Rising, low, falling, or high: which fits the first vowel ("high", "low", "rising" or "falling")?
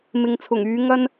low